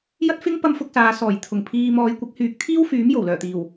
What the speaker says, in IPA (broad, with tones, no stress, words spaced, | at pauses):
jɐ˥t̚fɪ˥ŋ pɐ˥mfʊ˧k̚saː˨˧sɔː˨˩j t̪ʰʊ˨˩ŋpʰiː˧ mɔː˨˧jkʷɪ˨˥k̚hyː˨k̚ t̪ʰiː˥wfyː˨˥m jo˨˩wlœː˨˩t̪iː˨˩w